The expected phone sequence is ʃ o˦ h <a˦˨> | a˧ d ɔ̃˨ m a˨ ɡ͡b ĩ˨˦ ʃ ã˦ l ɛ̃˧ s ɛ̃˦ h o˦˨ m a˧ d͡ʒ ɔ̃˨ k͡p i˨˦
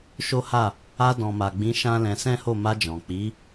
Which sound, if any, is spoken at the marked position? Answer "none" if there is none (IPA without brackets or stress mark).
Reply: a˦˨